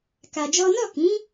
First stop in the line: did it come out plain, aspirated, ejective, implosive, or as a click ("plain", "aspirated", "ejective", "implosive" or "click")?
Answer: plain